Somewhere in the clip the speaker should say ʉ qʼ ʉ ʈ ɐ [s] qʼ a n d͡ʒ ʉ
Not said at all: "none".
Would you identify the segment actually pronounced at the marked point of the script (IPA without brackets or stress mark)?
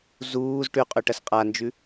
s